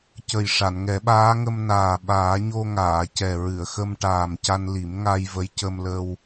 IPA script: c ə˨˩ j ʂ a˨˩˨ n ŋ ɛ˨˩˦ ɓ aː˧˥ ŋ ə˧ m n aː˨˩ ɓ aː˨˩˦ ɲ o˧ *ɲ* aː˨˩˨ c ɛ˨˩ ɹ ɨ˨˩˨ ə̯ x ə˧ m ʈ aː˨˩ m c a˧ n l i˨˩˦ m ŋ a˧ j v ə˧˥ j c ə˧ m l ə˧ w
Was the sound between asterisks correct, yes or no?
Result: no